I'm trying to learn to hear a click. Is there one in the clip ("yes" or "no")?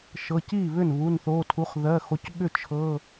no